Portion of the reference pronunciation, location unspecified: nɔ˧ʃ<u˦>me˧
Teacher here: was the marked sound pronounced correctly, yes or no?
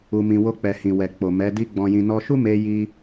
yes